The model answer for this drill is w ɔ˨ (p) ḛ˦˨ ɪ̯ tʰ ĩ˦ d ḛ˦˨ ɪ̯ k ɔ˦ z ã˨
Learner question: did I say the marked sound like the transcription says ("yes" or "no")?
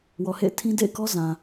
no